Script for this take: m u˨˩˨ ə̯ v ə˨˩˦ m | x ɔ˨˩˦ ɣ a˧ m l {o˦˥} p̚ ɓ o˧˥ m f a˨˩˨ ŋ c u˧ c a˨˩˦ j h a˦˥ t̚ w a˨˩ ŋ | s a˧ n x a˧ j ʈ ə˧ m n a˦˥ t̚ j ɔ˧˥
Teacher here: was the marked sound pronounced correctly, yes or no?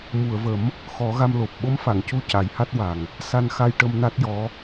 no